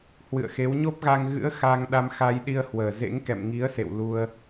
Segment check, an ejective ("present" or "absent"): absent